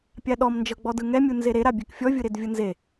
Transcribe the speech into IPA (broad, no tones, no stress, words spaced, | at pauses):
pʲaɗɔm nd͡ʒɤɡ͡bɔdɯŋɛ mʲunzeɾe ɾabʲekfʲɔ vʲɯɾedvʲɯnze